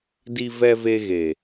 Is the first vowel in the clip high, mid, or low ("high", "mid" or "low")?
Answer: high